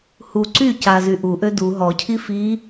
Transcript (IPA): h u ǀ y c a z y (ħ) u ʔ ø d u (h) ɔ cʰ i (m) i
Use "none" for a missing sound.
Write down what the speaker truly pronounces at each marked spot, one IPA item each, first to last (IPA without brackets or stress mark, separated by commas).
ʔ, ɦ, f